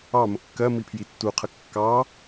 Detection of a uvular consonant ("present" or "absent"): present